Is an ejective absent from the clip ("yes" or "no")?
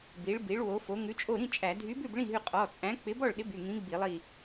no